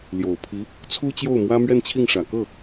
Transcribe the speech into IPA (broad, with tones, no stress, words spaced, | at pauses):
ljo˨˩ʊ̯pʰi˧˥ | t͡sʰu˥t͡ɕjo˥˩ʊ̯mwä˥ mɥɛ˥˧nt͡ɕʰi˥˩ŋʂä˨˩ kɤ˥˩